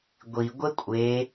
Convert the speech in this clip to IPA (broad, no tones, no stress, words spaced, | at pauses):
ɡʷi ɡʷekʷʼe